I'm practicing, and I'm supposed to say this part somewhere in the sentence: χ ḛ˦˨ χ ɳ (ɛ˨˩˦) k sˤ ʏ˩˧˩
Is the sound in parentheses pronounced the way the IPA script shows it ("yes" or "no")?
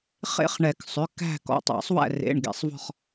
yes